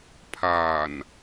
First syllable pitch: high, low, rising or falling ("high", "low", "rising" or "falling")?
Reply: low